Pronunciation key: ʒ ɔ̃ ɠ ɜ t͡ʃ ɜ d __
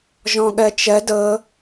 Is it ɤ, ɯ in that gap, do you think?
ɤ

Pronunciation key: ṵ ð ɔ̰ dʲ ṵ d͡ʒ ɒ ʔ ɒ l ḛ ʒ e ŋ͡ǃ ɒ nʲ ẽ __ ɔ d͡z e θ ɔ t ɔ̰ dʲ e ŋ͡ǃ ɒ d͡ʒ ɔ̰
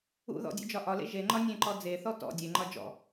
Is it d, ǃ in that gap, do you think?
ǃ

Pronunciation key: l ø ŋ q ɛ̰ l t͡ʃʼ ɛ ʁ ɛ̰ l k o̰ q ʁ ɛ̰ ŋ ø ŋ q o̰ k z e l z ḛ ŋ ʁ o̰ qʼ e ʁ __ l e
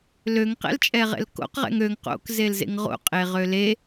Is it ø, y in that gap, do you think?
ø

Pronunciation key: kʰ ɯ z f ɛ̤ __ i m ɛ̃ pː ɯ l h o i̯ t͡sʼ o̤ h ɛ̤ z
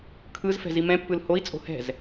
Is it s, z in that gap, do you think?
z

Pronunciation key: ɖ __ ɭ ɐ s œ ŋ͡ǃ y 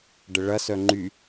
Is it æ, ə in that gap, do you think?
ə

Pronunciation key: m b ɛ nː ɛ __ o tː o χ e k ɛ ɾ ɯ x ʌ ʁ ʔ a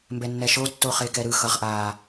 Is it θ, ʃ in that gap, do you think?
ʃ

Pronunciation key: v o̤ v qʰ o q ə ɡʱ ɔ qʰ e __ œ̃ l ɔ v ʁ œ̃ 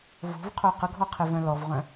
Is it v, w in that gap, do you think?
v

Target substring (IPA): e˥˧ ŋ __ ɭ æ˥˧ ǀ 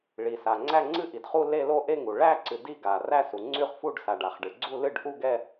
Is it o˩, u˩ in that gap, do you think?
u˩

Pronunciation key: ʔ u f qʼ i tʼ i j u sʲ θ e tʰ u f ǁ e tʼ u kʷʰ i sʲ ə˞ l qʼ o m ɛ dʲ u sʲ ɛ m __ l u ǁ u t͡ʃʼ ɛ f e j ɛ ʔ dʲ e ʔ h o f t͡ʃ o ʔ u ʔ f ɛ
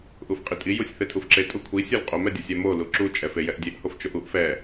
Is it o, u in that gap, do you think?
o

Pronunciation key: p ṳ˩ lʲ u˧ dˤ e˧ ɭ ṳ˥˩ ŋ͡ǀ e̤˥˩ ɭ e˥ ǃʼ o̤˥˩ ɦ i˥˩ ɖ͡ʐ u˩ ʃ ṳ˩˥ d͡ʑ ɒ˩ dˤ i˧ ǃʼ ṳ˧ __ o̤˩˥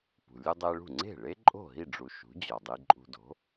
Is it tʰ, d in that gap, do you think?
d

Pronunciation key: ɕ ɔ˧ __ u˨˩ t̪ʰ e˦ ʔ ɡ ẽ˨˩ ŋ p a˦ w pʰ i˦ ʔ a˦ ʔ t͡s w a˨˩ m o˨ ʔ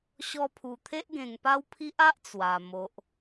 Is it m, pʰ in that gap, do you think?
pʰ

